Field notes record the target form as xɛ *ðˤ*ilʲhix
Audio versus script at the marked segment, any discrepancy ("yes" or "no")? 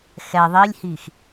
no